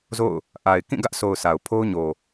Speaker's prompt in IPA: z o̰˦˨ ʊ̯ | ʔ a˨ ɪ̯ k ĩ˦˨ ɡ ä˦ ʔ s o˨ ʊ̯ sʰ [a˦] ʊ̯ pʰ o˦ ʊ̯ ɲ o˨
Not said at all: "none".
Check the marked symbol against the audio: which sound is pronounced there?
a˨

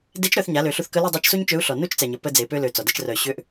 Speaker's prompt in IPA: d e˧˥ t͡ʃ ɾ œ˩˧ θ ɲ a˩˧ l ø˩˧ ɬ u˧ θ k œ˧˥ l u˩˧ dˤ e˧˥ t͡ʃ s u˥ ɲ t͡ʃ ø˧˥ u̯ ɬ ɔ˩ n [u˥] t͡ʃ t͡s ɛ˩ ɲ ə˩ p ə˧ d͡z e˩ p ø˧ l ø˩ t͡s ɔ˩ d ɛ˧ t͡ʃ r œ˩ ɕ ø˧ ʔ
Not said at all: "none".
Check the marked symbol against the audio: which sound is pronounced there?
u˥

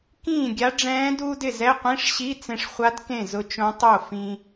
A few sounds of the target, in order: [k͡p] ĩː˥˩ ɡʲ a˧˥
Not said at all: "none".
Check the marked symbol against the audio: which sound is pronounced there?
k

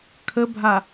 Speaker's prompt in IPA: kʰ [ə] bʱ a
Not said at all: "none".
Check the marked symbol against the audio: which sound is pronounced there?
ə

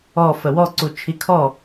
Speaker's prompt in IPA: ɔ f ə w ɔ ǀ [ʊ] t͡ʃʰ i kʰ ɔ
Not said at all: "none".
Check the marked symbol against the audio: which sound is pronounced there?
u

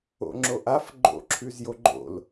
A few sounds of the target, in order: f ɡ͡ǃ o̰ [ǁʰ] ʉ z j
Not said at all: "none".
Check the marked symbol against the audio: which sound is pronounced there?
ǁʰ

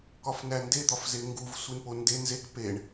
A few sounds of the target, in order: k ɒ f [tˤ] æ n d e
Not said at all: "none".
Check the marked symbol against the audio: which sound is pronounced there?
n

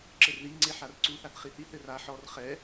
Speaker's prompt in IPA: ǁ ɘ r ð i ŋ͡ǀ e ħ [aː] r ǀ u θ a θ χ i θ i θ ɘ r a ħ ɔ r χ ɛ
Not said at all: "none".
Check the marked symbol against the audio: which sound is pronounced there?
a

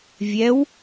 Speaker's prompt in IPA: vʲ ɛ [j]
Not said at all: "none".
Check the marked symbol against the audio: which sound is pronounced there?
w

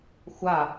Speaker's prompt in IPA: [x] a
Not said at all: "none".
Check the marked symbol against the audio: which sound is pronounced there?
xʷ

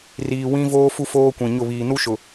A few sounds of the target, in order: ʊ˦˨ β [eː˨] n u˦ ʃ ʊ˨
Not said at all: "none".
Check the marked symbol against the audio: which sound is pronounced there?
iː˨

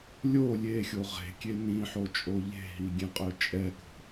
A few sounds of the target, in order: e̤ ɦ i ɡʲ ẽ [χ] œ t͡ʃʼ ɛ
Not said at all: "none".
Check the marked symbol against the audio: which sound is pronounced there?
qʼ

